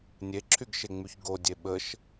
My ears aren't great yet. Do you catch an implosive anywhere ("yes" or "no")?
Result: yes